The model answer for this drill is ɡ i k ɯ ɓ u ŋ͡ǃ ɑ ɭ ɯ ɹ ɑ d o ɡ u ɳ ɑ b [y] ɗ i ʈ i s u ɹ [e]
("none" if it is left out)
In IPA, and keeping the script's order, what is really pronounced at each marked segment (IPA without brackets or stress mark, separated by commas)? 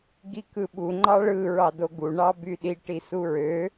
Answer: y, ø